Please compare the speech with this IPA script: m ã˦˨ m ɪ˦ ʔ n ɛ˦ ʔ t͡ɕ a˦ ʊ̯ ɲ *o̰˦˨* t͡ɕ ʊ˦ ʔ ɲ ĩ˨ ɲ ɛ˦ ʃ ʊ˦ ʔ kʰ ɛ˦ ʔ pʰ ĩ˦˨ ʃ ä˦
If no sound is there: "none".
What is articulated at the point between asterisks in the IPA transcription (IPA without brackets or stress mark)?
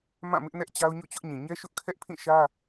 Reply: o̰˦˨